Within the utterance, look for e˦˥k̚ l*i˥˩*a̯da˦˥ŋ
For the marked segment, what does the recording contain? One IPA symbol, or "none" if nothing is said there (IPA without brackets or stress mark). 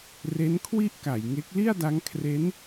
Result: i˥˩